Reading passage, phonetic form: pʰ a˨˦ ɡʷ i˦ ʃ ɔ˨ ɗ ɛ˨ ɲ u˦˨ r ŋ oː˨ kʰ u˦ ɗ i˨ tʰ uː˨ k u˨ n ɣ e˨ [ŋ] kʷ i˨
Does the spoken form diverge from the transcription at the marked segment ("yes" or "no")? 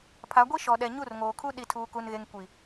no